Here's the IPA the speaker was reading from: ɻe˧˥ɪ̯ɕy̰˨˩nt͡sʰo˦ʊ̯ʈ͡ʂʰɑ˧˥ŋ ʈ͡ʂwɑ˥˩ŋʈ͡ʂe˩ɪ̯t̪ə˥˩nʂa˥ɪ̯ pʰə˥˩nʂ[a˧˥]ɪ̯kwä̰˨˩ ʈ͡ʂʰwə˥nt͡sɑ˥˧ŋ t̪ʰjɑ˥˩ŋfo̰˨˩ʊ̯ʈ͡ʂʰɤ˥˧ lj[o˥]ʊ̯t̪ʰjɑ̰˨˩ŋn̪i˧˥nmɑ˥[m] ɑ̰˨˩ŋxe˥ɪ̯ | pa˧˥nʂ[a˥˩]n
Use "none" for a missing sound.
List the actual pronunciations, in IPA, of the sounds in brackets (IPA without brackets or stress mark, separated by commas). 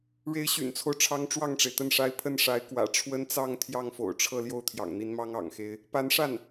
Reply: a˧˥, o˥˩, ŋ, a˥˩